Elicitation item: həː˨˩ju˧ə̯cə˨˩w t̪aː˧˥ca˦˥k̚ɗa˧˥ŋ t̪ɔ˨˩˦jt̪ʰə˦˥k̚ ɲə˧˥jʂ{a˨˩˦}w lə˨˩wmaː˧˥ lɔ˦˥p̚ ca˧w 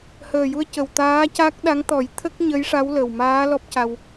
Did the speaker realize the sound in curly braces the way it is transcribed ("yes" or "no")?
no